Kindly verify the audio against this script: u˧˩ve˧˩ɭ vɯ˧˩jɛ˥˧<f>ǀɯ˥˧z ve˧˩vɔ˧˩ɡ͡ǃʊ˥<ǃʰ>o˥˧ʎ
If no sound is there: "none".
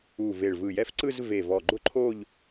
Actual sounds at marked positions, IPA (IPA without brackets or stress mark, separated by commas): f, ǃʰ